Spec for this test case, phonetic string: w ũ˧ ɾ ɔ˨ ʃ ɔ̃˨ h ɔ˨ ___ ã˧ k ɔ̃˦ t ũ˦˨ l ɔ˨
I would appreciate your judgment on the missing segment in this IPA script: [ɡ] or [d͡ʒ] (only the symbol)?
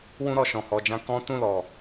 d͡ʒ